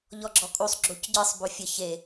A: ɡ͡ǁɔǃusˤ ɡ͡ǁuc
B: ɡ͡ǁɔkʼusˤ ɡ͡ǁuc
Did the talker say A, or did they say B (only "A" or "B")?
B